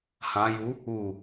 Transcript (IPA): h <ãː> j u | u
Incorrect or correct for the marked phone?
incorrect: ã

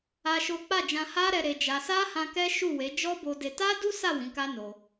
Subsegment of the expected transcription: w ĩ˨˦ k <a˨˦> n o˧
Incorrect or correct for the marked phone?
incorrect: a˦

